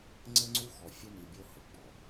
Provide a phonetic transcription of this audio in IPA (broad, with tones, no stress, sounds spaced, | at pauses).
ŋ͡ǀ ɘ˦ ŋ͡ǀ u˦ x ɔ˨ fʲ ɘ˦ n i˨ bʲ o˦ h ɘ˨ ɡ͡b ɔ˨